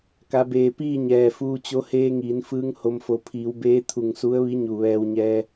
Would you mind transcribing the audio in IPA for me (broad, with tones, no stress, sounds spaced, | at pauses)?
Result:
k a˩˧ b eː˩ p iː˥˨ ɲ ɛː˧˩ f uː˧ t͡ɕ o˧˥ h eː˧ ŋ iː˩˧ n f ɯː˧˥ ŋ h o˧ m f o˧˩ pʰ iː˩˧ w b eː˧˥ t̪ʰ u˧˩ ŋ s u˧˥ ə̯ ʋ i˧˥ ɲ u˧˩ ʋ ɛː˧ w ɲ ɛː˧